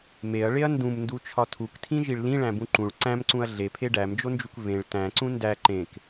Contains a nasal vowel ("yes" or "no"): yes